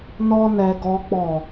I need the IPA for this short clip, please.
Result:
n ɔ˦ n ɛ˧ ɡ ɔ˧ k͡p ɔ˨

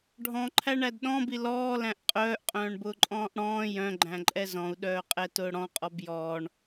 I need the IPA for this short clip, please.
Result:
ɖʱ ɔ̃ ǃʰ æ ɳ æ d ɗ ɔ̃ b i l ɔː l æ̃ ʔ qʼ œː ʔ qʼ œ̃ː ɳ b ʊː ǃʼ ɔ̃ː ʔ ɽ ɔ̃ː j œ̃ ɡ͡ǃ æ̃ ǃʼ ɛ z ɔ̃ u̯ ɗ œː qʼ ɛ t ʊː ɽ ɔ̃ qʼ ɔ b j ɔː ɳ

